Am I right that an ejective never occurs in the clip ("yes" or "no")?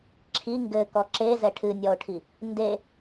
yes